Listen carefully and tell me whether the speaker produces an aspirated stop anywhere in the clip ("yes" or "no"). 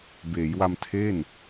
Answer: yes